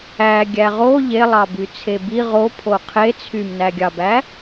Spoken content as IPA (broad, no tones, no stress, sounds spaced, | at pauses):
æ ɡʲ æ ʁ o ʎ e lˠ ɑ b y t͡sʰ e b i ʁ o pʰ o qʰ e t͡sʰ y m n æ ɡʲ ɑ b æ